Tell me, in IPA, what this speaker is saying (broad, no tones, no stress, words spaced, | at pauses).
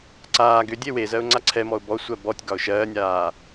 ǀaː ɡʏ dʲewezɜʊ̯ ŋ͡ǀaǀʰɛmɔʊ̯ bɔ sʷɜbɔtʲɡɒʊ̯ ʃɜːnʲaː